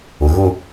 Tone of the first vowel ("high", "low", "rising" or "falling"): low